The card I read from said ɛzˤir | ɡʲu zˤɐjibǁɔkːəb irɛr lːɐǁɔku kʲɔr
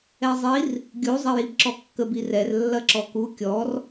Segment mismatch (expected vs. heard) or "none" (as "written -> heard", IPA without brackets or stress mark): none